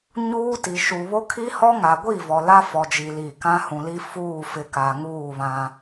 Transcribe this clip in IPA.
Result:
ɲuː˦ti˨ʃu˨ βo˦kʰi˦hɔ˦ ŋa˨ɡʷi˦˨vɔ˨ la˦fɔ˨d͡ʒi˨ li˦˨ kã˦hũ˨li˦ fuː˦˨fɪ˨ ka˨ ŋuː˦˨βã˦

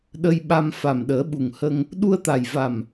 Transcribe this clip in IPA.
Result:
ɗə˧jɓa˧m fa˨˩mɗəː˨˩˦ɓu˨˩ŋhə˧ŋ | ɗu˧ə̯t̪a˨˩jva˨˩m

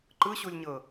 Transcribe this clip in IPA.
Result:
ǃɯɕulʲɲɤ

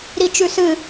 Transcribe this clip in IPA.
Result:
ɾit͡ʃʉsɨ

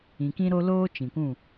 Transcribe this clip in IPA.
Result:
ĩ˨ kĩ˦ɾo˦loː˦ t͡ʃĩ˨kʷũ˦˨

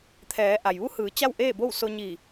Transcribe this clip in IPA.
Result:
t̪ʰɛː˩˧ʔa˩jʋu˧˥hɯː˩˧ t͡ɕa˥˨wʔeː˥˨bo˥˨w so˧ ɲi˧˩

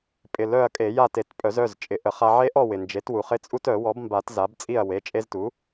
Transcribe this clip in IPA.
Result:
pʼɪ˩˧˩ lœ˥˨ɐ̯kʼe˨˩˦ja˥˨te˨˩˦t pʼœ˨˩˦zœ˩˧˩z t͡ʃʼɪ˨˩˦ʔə˨˩˦χa˦ ʕe˦ʔɔ˥˨ wɪ˩nd͡ʒe˩˥t wu˩χɪ˦t͡sʼu˦tœ˨˩˦ wɔ˩˥bmba˨˩˦t za˩˥bt͡sʼi˥˨ɐ̯ we˩˧˩t͡ʃʼe˦ztu˩˥

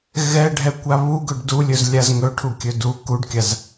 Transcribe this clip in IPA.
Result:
ɣɛ ɖʱɛkʷaβu ɡɵɖdulʲɵz lʲazŋɵʈʰu kʲɵdu kuɖkʲaz

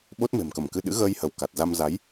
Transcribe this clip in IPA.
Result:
ɓo˦˥t̚me̤˨˩mkə˧˩mkɨ˧ ɗɨ̰˧˥ɣəː˧jhə˧˩w ka˨˩t̚za˧m za˨˦j

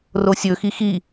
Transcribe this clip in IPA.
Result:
rosʲɵxi xi

